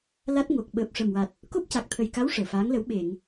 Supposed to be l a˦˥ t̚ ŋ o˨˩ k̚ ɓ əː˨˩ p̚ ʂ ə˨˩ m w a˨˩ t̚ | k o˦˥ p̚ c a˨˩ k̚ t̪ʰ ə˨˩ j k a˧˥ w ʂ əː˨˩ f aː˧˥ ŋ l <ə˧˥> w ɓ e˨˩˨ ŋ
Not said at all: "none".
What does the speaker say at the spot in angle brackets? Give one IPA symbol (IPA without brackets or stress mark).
ə˧˥